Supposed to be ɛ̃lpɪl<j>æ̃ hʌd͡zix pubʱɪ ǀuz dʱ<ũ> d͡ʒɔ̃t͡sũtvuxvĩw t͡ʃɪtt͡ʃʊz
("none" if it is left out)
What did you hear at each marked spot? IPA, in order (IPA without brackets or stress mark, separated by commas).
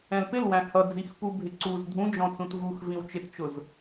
w, ũ